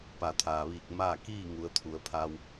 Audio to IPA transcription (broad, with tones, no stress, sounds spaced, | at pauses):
p a˩ t̪ʰ aː˩ ʋ iː˧˩ k̚ m aː˥˨ k iː˥˨ ŋ u˩˧ ə̯ t̪ʰ u˩˧ ə̯ pʰ a˧ w